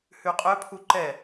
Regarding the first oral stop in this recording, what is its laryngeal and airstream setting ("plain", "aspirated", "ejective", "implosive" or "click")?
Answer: ejective